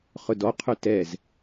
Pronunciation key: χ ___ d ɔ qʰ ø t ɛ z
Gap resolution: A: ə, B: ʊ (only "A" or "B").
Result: B